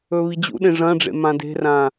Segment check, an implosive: present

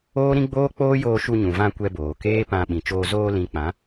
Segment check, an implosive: present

